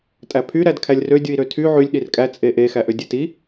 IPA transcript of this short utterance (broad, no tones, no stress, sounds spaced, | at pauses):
tʼ æ pʰ y ɾ æ d kʰ æ lʲ r ø dʲ ɯ i̯ ɾ ø tʰ y ʕ y lʲ ɗ i r kʼ æ t͡sʼ e ʔ e x æ ʔ ø dʲ e t i